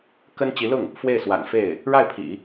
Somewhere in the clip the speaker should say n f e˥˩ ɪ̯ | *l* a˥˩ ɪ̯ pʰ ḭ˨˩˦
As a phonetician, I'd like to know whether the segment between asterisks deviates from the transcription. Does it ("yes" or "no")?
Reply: yes